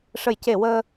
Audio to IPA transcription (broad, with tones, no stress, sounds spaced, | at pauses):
ʂ ə˨˩˨ j c e˨˩˨ w əː˧